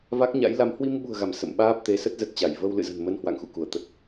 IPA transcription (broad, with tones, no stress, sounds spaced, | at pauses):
v a˦˥ k̚ ɲ a̰˧˥ j l a˨˦ m h w i˧ m ɓ ṳ˨˩ ə̯ ɣ a˧˩ m s ə̰˧˨ m ɓ aː˦˥ p̚ t̪ e˨˦ s ə˦˥ t̚ z ə˨˩ t̚ t͡ɕ a˧˩ j v ə˧ w l ɨ̰˧˨ z ə̤˨˩ n m ə˧ n h w a̰˧˨ ŋ x ṵ˧˨ k u˧˩ ə̯ t̪ ə˨˩ t̚